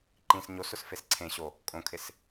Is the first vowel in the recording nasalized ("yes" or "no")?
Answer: yes